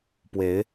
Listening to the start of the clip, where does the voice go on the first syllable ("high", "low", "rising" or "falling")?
rising